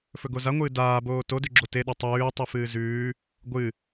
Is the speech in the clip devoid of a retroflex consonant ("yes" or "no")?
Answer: yes